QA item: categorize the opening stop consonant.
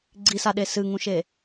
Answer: click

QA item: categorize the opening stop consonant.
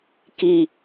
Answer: plain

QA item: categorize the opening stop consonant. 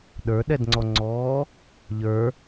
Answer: implosive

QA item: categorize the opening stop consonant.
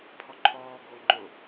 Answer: aspirated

